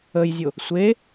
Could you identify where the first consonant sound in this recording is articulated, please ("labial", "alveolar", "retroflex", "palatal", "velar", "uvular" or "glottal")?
palatal